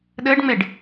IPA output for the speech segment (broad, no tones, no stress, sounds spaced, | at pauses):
ɗ ɘː ɖ ŋ͡m e ɖ